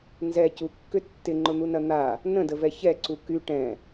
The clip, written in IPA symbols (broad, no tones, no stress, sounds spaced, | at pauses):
n z ɛ c u kː ʏ tː ɪ ŋ͡ǃ ʊ n̪ u n ɐ n̪ a | n ə̃ d ə v ɛ ç ɛ ǀ u k y ʈ ɛ̃